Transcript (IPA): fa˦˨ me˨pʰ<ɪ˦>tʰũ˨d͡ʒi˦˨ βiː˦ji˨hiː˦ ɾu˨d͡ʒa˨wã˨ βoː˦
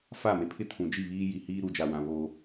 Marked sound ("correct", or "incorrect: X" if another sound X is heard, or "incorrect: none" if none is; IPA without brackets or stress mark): correct